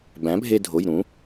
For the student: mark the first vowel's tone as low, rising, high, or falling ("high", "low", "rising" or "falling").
rising